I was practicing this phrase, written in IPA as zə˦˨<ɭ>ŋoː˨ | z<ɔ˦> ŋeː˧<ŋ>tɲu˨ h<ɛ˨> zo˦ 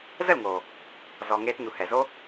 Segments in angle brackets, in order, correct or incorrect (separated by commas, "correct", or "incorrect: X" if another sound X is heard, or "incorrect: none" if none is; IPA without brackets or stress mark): incorrect: l, incorrect: ɔ˨, incorrect: none, correct